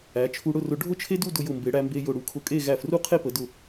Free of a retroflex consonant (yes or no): no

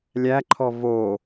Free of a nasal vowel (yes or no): yes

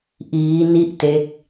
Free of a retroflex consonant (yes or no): yes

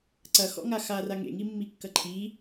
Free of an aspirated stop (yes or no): no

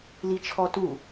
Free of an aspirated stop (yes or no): no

